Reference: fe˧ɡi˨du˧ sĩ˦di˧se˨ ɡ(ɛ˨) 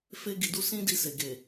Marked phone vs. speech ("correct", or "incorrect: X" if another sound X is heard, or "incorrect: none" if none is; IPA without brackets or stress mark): incorrect: e˨